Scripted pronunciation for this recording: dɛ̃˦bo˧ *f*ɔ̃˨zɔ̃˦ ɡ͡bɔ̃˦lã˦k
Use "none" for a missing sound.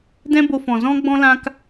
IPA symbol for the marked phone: f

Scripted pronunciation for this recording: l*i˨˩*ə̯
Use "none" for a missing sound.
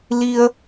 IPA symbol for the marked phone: i˧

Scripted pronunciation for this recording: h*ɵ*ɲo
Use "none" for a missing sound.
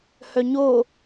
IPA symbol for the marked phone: œ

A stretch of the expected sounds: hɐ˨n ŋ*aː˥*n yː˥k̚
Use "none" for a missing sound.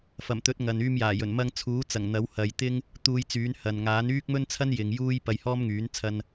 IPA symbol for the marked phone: aː˨˥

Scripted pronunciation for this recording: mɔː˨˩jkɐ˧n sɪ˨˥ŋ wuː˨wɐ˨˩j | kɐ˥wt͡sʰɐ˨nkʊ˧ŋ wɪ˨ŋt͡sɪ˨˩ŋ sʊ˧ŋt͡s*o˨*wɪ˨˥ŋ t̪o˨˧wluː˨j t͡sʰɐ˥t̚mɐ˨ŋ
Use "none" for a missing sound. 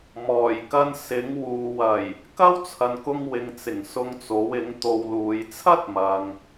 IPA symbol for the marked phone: o˨˥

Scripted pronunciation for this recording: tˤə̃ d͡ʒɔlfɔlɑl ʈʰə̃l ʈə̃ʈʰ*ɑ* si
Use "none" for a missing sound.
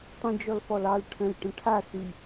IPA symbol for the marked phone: a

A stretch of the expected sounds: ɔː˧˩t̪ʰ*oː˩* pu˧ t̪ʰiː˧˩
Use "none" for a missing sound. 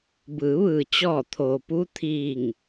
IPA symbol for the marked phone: oː˩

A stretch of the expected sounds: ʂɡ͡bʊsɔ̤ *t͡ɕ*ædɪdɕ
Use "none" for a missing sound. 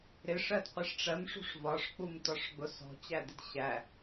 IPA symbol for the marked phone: t͡ɕ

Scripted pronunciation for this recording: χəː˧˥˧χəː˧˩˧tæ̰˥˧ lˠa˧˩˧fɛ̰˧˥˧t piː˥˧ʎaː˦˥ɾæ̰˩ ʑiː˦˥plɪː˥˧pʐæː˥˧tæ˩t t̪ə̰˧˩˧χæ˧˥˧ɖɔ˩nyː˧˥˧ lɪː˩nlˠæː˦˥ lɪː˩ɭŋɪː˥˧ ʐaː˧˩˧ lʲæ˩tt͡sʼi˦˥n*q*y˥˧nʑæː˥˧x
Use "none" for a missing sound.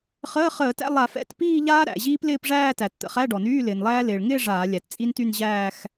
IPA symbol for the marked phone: t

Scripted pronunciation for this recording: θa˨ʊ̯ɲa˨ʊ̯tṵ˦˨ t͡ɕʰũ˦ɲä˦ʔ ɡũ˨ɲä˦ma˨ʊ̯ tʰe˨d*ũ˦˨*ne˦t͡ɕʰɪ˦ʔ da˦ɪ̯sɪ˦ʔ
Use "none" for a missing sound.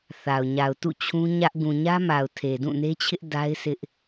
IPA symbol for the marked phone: ũ˦˨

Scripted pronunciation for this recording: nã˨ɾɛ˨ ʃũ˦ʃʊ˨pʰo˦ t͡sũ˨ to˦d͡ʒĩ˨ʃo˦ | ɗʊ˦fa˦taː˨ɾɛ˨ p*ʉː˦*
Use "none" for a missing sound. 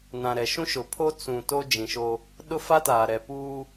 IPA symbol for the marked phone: uː˦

